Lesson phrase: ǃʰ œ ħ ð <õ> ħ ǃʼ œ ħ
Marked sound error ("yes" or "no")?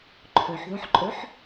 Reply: no